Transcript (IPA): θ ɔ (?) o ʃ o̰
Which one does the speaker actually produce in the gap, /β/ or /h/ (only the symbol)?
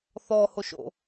h